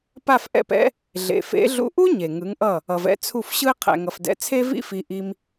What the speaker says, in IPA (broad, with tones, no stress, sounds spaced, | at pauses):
p a˥˩ f ʔ ɛ̰˥˩ p ɛ̰˥ | ɮ ḛ˩ f ḛ˩˥ ɮ ṵ˧ ʔ u˥ ɲ e˩ ŋ ɯ˩˥ ŋ ʔ ʌ˥˩ | ʌ˩ v ɛ̰˧ t͡sʰ u˥˩ f ɕ ɯ˥ ɪ̯ qʰ ɛ̰˩ ŋ ʌ˩ f d ɛ̰˩˥ t͡sʰ e˥ v ḭ˥ f i˧ ʔ i˧ m